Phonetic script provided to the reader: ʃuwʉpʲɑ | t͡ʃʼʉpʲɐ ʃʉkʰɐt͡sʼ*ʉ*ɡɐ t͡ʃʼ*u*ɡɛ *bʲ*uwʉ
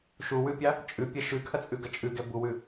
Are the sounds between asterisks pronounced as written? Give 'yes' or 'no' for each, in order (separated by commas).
yes, no, no